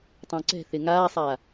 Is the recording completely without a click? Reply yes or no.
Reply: no